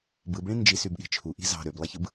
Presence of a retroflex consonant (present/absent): present